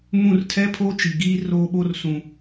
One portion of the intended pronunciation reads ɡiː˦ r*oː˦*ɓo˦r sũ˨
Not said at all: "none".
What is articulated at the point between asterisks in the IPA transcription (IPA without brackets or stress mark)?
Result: oː˦